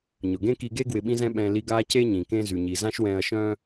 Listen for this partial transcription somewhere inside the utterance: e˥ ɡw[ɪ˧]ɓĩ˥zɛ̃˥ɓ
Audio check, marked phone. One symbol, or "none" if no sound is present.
ɪ˧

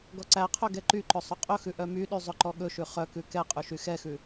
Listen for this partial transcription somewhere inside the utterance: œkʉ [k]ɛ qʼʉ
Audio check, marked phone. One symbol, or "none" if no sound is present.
k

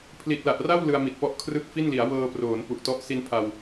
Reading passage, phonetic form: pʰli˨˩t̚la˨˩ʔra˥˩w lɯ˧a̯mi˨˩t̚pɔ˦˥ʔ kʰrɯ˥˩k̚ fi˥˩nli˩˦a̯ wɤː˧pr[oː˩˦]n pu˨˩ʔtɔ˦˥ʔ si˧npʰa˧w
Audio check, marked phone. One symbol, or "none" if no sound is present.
oː˩˦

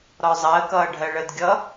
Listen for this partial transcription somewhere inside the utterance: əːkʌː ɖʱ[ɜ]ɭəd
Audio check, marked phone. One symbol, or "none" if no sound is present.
ɜ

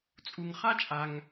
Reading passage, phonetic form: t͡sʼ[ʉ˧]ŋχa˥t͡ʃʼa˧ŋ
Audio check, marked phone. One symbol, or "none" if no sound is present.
u˧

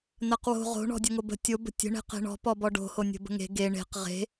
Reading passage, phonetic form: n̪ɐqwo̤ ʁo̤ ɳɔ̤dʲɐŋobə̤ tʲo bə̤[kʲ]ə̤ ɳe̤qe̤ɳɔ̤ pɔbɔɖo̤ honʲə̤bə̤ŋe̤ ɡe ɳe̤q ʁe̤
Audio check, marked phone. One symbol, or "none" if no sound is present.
tʲ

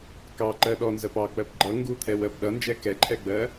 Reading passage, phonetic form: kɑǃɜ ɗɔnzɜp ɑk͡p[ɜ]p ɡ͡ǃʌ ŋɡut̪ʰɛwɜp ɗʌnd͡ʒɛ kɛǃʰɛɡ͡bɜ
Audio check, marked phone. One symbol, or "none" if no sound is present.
ɜ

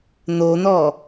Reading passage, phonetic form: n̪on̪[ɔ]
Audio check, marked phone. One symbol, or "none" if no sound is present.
ɔ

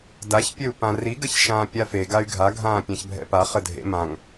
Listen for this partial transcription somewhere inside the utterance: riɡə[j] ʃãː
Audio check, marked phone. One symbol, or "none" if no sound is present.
ç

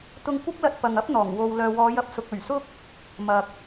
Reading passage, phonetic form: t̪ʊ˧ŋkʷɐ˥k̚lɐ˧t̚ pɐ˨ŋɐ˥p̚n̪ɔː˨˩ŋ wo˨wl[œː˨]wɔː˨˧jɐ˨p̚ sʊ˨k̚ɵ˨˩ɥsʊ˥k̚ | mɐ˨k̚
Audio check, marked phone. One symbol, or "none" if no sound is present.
œː˨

